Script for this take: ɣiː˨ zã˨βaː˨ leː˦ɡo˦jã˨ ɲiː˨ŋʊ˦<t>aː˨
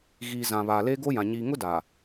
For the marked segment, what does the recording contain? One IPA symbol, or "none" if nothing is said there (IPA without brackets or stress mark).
d